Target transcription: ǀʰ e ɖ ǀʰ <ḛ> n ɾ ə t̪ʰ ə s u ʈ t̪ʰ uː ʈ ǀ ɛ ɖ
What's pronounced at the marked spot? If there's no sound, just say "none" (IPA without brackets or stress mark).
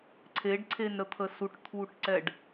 e